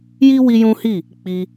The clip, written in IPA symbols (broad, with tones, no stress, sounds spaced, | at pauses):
j i˦ w i˦ j ũ˦ h i˦˨ | k͡p i˧